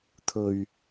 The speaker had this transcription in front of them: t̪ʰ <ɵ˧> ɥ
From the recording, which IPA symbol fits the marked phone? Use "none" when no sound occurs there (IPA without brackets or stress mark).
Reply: ɵ˧